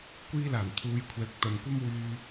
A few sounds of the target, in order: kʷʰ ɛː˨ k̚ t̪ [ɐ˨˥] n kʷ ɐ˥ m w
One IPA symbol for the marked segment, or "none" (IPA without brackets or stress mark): ɐ˨